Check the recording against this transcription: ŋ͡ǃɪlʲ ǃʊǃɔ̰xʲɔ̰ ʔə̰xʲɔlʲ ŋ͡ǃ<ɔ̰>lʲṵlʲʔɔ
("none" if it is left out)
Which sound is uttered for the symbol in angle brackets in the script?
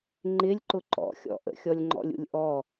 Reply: ɔ̰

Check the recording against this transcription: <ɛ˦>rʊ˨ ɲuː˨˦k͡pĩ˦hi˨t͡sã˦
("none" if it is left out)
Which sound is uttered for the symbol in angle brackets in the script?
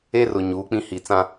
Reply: e˦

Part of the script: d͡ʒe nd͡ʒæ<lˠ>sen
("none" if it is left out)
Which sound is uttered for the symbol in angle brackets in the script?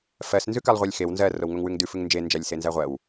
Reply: lʲ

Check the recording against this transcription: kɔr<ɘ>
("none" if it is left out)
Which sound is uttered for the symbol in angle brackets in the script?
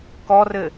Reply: ɘ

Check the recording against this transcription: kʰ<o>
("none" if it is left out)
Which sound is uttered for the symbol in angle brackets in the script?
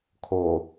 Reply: o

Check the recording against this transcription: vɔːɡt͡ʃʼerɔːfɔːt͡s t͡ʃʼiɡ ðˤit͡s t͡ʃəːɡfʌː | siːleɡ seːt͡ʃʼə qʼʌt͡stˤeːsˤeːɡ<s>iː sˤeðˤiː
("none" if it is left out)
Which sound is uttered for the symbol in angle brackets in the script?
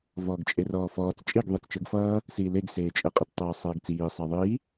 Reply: t͡s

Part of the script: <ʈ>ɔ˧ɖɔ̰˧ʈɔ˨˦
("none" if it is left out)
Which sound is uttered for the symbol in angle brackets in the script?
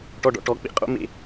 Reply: ʈ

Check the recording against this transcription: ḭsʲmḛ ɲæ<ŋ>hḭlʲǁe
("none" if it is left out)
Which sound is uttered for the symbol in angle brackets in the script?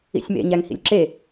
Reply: ŋ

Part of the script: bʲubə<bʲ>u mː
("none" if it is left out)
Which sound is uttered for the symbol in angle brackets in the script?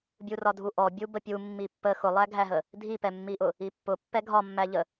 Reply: pʲ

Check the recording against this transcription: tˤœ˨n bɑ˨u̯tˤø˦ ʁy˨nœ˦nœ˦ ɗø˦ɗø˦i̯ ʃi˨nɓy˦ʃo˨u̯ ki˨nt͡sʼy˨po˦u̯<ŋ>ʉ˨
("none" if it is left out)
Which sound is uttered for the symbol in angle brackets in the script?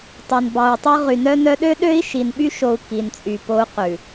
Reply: q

